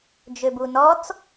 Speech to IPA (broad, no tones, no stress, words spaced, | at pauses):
d͡ʒøbunɔt͡s